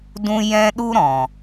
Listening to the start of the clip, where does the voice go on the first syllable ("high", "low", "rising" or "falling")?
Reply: high